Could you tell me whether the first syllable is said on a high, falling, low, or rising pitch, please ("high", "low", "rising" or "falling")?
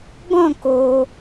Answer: falling